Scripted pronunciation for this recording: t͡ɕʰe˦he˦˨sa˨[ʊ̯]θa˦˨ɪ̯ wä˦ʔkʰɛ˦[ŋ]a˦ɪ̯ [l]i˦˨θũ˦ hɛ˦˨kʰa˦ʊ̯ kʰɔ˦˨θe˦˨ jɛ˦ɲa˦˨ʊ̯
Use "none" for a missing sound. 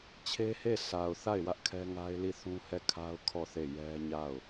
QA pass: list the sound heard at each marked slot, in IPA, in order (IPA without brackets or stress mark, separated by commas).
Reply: ʊ̯, ŋ, l